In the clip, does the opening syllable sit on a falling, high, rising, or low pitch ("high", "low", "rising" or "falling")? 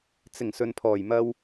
low